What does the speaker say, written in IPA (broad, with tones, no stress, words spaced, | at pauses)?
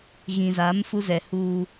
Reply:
ɣĩ˨za˨˦m fu˦zɛ˨huː˦